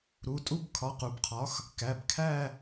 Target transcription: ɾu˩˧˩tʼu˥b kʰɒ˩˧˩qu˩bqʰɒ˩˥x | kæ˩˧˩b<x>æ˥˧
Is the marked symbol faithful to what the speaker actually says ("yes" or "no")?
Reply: no